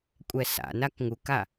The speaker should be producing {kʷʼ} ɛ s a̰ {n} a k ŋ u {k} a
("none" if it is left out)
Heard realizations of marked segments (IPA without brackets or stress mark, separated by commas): kʷʼ, n, k